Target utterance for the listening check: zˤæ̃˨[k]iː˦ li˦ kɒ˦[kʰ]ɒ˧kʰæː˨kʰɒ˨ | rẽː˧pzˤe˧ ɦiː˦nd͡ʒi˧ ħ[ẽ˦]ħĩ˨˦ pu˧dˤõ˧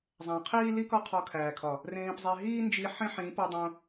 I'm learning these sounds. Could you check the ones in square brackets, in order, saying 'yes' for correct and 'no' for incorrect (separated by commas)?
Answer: no, no, yes